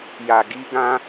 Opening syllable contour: low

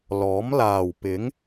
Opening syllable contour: rising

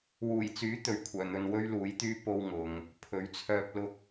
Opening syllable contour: low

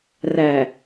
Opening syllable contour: low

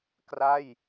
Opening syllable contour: falling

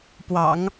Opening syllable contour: low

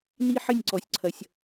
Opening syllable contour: high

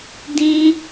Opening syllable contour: high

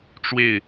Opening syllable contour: falling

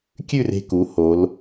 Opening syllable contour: falling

